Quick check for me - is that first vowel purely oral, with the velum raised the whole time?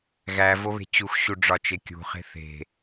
yes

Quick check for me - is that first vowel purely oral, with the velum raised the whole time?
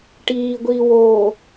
yes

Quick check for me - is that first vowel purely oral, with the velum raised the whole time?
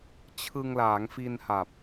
yes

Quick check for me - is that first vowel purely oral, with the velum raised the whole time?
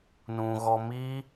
no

